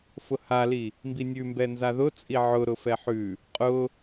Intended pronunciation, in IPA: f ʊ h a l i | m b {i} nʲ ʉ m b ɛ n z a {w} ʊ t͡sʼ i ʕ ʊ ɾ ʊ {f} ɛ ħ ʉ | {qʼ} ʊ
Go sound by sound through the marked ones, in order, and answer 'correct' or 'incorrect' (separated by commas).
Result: correct, incorrect, correct, correct